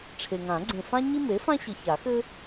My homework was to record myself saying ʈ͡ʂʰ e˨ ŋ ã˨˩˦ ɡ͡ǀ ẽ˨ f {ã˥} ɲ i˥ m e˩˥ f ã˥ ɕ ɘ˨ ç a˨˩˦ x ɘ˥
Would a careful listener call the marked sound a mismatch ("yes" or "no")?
no